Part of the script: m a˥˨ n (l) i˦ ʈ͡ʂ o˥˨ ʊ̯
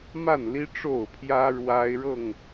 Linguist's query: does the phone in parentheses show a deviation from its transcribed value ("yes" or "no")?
no